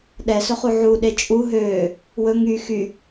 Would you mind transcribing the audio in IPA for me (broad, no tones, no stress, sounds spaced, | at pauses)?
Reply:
ɗ ɛ s ɵ χ u ʕ u ɗ e t͡ʃʼ u ɦ øː | w ɵ ŋ y x y